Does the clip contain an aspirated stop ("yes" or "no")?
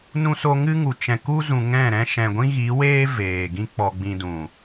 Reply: no